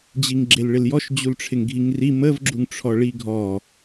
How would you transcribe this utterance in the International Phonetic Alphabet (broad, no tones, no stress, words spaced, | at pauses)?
d͡ʑiŋɡ͡ǁelɭɪljɔʃ d͡ʑulʈ͡ʂʰɪŋɡʱiŋri məv ɡ͡ǁuŋʈ͡ʂʰɔɭiɡʱɔ